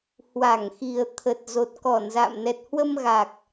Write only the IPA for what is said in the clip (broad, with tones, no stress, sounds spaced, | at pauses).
h w a˧˩ ŋ x i˨˩ ə̯ t̪ʰ ə˨˩ t̚ z o˨˩ t̚ k ɔ˧˩ n z a̰ː˧˨ m n ɛ˨˩ t̚ h w ə˧ m ɣ a˨˩ k̚